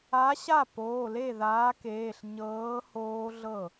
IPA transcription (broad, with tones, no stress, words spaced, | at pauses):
a˨˥ɕa˥˩poː˩˧˩ le˥˩ðaː˨˥keː˩˧˩ɬ ɲɤː˨˥ hoː˦˥ɮɤ˥˩